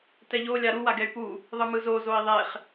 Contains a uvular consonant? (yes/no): yes